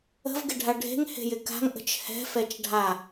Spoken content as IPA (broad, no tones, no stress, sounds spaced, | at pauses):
ə̤ v ɡ ɪ ɖʱ a ɖʱ e̤ ŋ h e̤ j ɪ k a̤ ŋ ʔ ə̤ t͡ʃ h ɛ̤ f ɛ t͡ʃ ɖʱ a